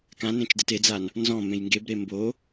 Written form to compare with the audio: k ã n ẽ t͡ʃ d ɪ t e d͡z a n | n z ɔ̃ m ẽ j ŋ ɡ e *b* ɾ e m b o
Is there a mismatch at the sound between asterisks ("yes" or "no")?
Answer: no